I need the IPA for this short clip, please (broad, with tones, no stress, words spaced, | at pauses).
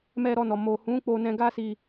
mɛ˧ɾɔ˧nɔ˨ mo˨hũ˨˦ k͡po˧nɛ̃˧ɡa˦si˧